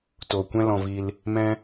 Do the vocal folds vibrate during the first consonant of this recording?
no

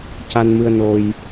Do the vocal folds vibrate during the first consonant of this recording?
no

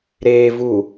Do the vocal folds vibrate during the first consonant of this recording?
yes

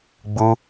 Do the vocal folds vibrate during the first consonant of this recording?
yes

